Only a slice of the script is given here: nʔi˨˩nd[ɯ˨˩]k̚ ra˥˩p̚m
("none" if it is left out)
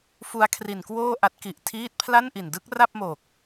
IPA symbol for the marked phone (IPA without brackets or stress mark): ɯ˦˥